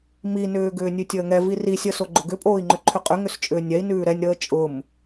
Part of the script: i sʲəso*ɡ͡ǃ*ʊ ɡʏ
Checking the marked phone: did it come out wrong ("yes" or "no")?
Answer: no